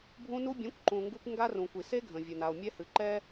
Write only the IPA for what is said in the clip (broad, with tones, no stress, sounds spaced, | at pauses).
bʱ ũ˧ n u˧ bʲ ẽ˨˦ kʷ ǃ ũ˨ ŋ ɡ u˦ kʷ ŋ ɡ a˦ r ũ˨ kʷ i˨ s e˦ ɡʱ ə̃˨ vʲ ə˨ n a˨ o̯ mʲ ɛ˧ h ɨ˨ ǃ ɛ˦